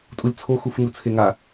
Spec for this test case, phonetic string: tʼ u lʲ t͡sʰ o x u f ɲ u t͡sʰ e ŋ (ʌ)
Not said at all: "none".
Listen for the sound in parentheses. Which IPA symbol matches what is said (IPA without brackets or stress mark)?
a